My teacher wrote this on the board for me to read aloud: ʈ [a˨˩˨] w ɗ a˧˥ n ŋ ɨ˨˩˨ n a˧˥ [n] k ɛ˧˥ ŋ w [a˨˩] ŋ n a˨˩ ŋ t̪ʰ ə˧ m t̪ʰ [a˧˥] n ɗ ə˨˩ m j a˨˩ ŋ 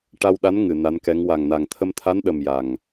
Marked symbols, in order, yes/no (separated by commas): no, yes, yes, yes